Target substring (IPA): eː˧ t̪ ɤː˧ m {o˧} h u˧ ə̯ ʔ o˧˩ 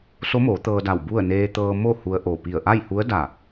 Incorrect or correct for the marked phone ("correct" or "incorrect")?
incorrect